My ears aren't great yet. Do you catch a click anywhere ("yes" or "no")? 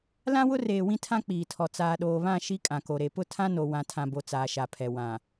no